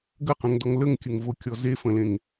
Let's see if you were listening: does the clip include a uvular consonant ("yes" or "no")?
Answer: yes